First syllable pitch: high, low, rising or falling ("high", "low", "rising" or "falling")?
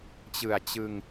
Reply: low